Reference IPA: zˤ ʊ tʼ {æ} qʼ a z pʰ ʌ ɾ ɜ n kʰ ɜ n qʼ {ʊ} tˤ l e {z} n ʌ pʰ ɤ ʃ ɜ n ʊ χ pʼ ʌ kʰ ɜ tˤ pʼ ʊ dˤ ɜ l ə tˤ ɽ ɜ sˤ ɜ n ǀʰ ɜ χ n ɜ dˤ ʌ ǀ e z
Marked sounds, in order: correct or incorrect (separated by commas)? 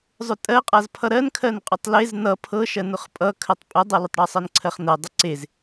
incorrect, correct, correct